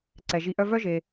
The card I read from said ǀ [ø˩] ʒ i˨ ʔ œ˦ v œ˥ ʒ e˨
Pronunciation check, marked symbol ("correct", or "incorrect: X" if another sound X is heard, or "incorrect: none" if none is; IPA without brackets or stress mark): incorrect: ɛ˩